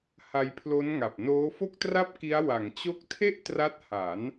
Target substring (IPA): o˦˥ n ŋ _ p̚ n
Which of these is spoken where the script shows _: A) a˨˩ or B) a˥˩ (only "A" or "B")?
A